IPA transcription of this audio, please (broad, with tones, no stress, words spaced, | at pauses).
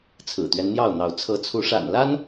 t͡sʰɹ̩˨˩t̪ɥɛ˦nn̪jɑ˥˨ʊ̯n̪ɑ˨˦ʊ̯ t͡sʰɤ˨˦t͡sʰu˨˦ʂa̰˨˩nla˦n